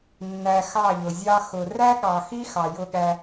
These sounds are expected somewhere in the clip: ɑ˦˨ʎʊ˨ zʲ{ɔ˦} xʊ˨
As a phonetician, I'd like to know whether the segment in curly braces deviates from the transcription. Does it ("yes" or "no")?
yes